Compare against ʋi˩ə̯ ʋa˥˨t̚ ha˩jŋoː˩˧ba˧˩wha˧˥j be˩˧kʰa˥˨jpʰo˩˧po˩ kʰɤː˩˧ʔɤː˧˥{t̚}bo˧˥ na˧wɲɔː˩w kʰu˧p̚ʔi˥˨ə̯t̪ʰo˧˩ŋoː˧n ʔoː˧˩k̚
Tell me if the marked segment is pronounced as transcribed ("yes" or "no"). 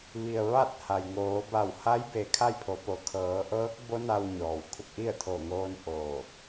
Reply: no